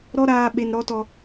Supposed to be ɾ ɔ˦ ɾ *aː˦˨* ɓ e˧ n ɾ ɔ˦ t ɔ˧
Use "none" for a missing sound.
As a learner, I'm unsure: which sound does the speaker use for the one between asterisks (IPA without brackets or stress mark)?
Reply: aː˧